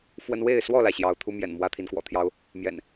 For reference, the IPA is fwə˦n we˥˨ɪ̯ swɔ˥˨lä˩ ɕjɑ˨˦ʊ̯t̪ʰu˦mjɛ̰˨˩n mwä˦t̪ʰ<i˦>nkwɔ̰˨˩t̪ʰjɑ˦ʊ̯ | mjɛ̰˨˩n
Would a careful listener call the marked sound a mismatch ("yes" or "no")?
yes